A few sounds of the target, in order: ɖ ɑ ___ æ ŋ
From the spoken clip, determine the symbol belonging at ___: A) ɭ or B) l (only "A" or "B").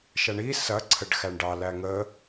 B